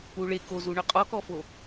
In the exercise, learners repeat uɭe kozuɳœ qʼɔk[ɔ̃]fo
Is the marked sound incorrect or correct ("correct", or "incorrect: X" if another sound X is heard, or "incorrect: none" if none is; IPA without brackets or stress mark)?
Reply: incorrect: ɔ